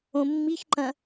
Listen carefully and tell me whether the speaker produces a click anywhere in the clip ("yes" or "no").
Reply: yes